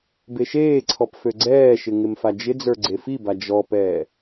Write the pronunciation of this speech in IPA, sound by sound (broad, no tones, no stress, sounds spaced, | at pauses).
b e ʃ eː ǀʰ ɔ p f ø ɡ͡ǀ ɛː ʃ ɪ ŋ ɪ m f a d͡ʒ ɪ d͡z ə˞ ɡ͡ǀ e f i b a d͡ʒ ɔ p ɛː